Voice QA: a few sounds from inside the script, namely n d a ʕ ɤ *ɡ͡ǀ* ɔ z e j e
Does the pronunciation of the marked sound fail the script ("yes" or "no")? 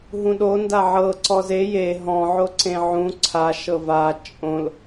yes